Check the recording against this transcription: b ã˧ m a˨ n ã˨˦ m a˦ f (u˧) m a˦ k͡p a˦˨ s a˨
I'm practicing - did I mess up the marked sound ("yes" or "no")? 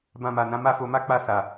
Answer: yes